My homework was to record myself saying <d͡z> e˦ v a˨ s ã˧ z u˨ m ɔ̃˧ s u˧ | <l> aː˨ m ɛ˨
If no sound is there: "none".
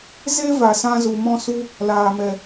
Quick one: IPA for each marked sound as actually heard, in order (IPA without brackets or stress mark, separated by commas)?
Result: z, l